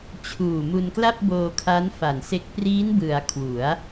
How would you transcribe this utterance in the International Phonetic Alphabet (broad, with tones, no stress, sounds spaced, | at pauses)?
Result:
t͡ɕʰ uː˨˩ m u˧ n k l a˥˩ p̚ b oː˧ kʰ a˦˥ n f a˨˩ n s e˦˥ k̚ p r iː˦˥ n b ɯ˩˦ a̯ kʰ w u˩˦ a̯